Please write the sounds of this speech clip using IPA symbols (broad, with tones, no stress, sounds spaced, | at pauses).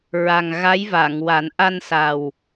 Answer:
ɹ a˨˩ ŋ ɣ a˧˥ j v a˨˩˨ ŋ w a˨˩˦ n ʔ a˧ n s a˨˩ w